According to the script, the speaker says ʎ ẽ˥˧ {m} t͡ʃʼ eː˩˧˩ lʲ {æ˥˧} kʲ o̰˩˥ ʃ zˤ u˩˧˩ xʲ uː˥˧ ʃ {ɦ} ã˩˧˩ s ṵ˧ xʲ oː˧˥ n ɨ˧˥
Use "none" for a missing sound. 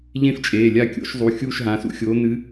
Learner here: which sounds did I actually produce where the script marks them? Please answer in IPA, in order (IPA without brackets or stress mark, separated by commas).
f, a˥˧, ɦ